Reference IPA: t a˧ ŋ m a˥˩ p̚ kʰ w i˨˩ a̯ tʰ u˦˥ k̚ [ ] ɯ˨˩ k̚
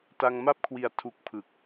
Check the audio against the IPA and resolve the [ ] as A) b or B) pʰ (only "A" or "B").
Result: B